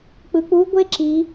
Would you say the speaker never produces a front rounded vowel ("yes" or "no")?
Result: yes